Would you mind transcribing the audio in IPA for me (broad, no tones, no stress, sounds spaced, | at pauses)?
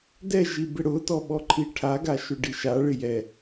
d ɛ ʒ i b ɪ ɽ ʊ t ɔ ɓ ɔ ǃʰ i ʈʰ a ɡ a ʃ ʊ ɖ i ʃ a ɭ ɪ j ɛ